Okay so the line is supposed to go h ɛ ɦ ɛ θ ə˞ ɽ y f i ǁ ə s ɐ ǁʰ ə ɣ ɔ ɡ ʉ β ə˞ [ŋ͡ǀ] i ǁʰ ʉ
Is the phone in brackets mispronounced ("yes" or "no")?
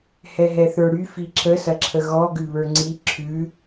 no